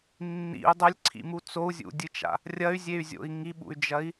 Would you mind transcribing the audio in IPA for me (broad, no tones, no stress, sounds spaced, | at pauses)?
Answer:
nː ḭ u̯ dˤ ɐ lʲ ǀʰ ḭ m u t͡s o u̯ zʲ ṵ dʲ ɨ t͡ʃ a̰ | rʲ ɐ y̯ zʲ e y̯ zʲ o̰ i̯ ŋ i ɓ ṵ y̯ d͡ʒ ɐ i̯